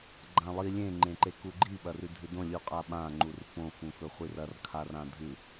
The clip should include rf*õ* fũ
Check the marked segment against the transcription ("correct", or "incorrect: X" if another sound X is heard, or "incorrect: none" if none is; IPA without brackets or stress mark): correct